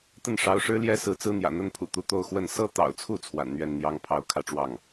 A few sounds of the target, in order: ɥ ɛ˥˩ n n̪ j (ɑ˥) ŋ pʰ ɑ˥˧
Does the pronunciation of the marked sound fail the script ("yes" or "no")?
no